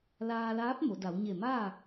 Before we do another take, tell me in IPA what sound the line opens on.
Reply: l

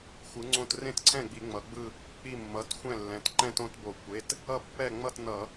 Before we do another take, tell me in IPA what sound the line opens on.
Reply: xʷ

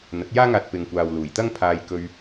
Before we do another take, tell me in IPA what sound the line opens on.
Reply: n̪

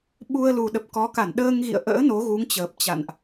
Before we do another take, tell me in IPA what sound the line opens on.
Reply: ɓ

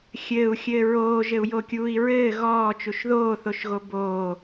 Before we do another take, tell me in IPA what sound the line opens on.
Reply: xʲ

